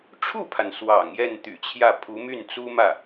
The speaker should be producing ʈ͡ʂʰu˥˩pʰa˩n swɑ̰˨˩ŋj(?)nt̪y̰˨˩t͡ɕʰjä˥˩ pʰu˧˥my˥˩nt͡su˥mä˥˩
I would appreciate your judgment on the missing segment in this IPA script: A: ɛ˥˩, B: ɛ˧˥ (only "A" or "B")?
A